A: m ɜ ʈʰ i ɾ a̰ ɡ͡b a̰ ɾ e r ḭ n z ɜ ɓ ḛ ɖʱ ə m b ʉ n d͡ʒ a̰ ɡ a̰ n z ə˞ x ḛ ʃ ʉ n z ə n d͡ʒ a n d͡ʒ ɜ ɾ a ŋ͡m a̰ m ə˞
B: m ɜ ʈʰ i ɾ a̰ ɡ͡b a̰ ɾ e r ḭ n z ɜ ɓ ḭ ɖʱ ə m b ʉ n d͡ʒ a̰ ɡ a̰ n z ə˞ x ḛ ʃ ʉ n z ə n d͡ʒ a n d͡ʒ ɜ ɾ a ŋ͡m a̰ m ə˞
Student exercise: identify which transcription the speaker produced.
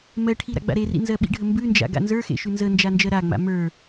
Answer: B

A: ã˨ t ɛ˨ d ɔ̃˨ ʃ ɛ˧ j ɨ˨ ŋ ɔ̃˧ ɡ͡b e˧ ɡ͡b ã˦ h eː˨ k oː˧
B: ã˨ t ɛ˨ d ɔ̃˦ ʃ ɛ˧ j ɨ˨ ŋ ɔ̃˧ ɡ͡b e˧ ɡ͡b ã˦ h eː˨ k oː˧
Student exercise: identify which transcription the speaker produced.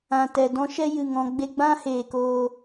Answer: B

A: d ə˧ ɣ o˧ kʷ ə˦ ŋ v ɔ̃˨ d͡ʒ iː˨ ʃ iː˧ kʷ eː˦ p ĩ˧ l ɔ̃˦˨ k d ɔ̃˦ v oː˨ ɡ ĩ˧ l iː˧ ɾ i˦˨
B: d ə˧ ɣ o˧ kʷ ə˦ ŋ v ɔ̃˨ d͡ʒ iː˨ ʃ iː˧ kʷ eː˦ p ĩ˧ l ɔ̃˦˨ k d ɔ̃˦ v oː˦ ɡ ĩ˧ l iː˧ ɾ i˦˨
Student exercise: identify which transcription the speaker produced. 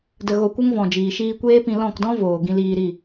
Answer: A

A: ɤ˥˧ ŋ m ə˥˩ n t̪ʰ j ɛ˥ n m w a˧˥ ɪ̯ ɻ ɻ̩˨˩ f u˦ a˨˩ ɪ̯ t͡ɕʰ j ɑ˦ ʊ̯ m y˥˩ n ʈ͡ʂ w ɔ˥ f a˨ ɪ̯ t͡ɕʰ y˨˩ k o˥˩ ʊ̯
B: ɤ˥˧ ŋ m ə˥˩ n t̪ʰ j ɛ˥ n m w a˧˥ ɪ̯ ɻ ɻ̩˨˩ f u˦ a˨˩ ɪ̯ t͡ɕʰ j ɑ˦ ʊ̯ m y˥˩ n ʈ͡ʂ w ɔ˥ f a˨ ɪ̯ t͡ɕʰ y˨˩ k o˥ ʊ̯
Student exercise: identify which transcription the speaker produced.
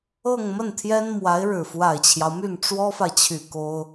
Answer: B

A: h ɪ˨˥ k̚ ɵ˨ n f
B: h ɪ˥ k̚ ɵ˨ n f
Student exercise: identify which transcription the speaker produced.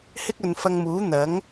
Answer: B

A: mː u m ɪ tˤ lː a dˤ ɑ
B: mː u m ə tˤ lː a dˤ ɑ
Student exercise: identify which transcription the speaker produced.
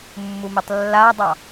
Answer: A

